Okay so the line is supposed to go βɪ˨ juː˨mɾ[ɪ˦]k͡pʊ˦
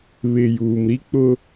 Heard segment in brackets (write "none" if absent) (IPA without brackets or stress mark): i˦